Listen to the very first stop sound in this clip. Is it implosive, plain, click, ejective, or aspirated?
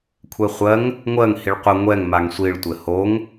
aspirated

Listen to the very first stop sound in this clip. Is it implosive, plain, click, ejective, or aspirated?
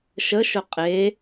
ejective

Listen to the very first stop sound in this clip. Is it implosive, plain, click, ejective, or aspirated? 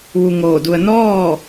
plain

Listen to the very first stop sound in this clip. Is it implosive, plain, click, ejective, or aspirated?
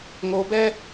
plain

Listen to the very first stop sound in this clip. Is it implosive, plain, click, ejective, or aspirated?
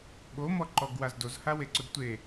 implosive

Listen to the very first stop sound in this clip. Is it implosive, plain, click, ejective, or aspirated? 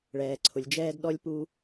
click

